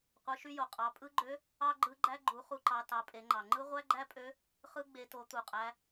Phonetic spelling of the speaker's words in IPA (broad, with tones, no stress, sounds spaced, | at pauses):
qʷ ɯ˩˧ ʃ y˧ j o˩ qʼ ɑ˩˧ pʼ ɯ˧˥ ɡ͡ǃ ø˧˥ | ɑ˥ ɡ͡ǃ ɯ˧˥ ɡ͡ǃ æ˥ ɡ͡ǃ u˩˧ χ u˧ ǃ ɑ˩˧ t ɑ˩˧ pʼ e˩˧ ŋ͡ǃ ɑ˩ ŋ͡ǃ ɯ˥ ʁʷ æ˥ ɡ͡ǃ æ˥ pʼ ø˧˥ | χ ɯ˧˥ ɡ͡b e˩˧ t o˩˧ t̪ u˩ qʼ æ˩˧